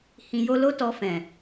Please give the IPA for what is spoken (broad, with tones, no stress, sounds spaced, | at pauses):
h ĩ˨ j o˧ l o˦ t ɔ˧ f ɛ̃˨